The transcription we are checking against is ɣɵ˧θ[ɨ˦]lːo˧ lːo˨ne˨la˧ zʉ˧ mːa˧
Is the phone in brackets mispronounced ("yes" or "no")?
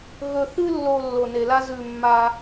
no